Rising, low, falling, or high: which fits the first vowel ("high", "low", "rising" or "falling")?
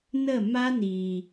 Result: falling